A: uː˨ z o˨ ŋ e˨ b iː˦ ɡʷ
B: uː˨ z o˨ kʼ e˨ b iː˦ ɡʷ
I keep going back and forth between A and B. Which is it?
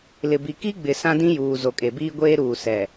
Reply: B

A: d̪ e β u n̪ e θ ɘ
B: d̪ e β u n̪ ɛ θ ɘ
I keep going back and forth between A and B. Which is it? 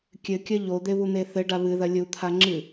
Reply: A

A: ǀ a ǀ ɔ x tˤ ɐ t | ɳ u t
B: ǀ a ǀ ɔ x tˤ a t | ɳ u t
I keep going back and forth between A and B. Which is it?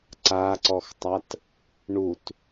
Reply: B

